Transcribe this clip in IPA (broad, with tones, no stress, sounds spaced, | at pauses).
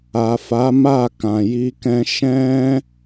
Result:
a˨ f a˨˦ m a˦˨ k ã˨ j i˧ k ɛ̃˦ ʃ ɛ̃˦